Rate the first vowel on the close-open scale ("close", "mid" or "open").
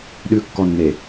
close